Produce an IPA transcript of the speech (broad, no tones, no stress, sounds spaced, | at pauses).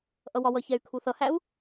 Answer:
ʔ ʌ w ɒ w ʌ ç ɛ y̯ kʰ u θ ʌ h æ u̯